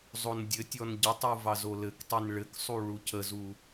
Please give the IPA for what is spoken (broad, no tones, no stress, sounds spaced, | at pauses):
zˤ o n dʲ ɘ tʲ ɔ n ɟ ə tˤ u v ɑ z o l ɘ k tˤ i n ɭ ɘ k sˤ u ɭ u cʰ ə z u